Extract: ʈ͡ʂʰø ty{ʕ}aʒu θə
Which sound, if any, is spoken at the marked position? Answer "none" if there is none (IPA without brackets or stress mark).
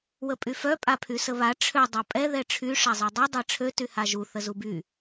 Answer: h